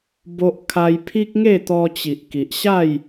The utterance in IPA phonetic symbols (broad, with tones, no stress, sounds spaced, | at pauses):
b o˦ ʔ kʰ a˦ j pʰ i˦ k̚ ŋ e˥˧ t̪ ɔ˧ t͡ɕ i˨ ʔ k i˨ ʔ ɕ a˥˧ j